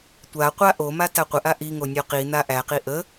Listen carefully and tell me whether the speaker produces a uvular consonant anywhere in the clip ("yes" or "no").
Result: yes